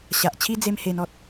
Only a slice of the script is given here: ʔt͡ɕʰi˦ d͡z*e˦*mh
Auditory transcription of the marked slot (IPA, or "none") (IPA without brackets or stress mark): e˦